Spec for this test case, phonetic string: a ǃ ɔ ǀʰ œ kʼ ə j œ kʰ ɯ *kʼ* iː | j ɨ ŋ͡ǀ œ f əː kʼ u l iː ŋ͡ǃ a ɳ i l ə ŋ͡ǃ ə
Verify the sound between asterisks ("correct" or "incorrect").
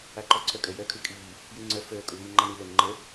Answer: correct